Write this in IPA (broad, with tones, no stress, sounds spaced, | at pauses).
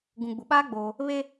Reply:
ɡ ũ˨ ɡ͡b u˨ ɓ aː˦ ɡ͡b oː˦ | β eː˦